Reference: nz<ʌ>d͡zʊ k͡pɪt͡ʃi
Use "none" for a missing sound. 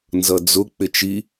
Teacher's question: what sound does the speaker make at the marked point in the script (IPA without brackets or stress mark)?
ʌ